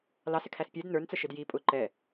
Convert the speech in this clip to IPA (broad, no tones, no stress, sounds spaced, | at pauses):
l ɑ s ɪ kʰ æ s pʲ ɛ d n ə˞ n t͡s ə ʃ ɪ d j i pʼ ʊ ǃ ɛ